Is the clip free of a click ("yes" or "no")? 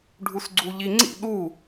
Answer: no